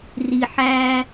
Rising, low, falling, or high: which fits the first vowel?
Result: low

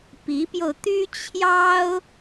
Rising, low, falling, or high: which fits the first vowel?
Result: rising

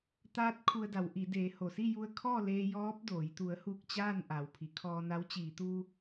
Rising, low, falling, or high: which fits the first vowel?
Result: rising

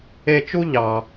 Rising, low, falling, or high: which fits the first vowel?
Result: high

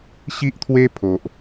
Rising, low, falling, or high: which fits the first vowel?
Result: high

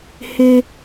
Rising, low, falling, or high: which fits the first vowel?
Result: low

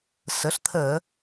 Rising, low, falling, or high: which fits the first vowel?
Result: rising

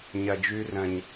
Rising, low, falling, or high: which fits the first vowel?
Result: low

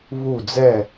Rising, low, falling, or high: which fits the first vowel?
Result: falling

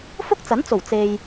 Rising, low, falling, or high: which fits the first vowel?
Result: high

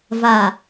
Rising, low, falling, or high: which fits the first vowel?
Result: low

